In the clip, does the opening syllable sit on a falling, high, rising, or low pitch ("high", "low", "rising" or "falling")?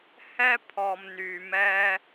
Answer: high